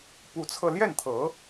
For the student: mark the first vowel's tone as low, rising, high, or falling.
rising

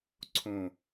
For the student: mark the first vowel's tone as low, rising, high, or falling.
low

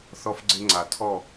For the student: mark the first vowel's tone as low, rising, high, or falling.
high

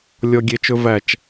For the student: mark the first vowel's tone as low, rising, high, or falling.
high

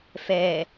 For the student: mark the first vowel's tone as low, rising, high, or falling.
low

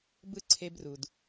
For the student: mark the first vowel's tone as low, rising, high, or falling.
high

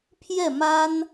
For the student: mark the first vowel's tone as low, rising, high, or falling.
falling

